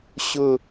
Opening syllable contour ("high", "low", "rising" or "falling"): falling